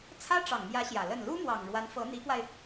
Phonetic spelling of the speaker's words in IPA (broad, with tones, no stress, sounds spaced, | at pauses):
t͡sʰ ä˥ ʈ͡ʂ ɑ˨˩ ŋ m j ä˧˥ ɕ j ä˨˩ l ə˥˩ n l u˥ m w ɑ˨˩ ŋ ɻ w a˧˥ n f ɤ˧˥ n̪ i˧˥ k w a˧ ɪ̯